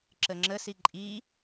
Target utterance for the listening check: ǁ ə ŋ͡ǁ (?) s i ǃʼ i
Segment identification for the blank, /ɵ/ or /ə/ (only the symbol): ə